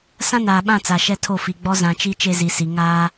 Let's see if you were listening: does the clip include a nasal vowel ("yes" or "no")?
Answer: yes